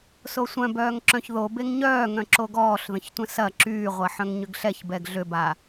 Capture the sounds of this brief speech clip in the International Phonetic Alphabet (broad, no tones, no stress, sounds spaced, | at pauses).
s o sʷ œ̃ b œː ŋ ǁ œ̃ ç ð o b e ŋ ɲ œː ŋ œ̃ ǁ o ɡ ɔː ɬ ð ə̃ ç tʷ ə̃ s ɐ ǁ yː ʁʷ ɐ ħ œ̃ ŋ ɲ ʏ ɡ ɬ ɛ ç b ɛ ɡ ɮ ʏ b a